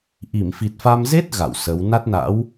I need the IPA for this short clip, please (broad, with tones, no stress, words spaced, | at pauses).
ʔi˧˩mfi˨˩t̚fa˧m ze˦˥t̚ ɣa̰˧˨wsə˨˦w na˦˥t̚na̰˧˥w